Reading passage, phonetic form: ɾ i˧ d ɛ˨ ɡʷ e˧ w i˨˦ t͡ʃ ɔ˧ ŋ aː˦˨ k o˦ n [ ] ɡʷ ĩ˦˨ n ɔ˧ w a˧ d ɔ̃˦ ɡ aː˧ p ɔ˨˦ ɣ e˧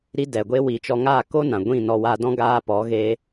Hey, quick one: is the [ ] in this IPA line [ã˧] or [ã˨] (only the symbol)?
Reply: ã˨